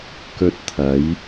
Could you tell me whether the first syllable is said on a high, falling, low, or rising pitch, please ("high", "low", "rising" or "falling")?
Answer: high